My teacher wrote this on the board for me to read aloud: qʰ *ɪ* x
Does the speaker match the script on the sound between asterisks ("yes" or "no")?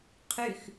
no